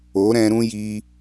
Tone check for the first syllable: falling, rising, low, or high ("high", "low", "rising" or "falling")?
rising